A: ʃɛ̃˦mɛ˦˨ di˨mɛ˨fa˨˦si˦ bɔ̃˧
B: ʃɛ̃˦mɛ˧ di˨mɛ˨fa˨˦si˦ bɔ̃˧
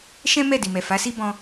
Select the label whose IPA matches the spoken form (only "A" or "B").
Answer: A